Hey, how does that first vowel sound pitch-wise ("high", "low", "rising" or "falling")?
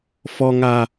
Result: low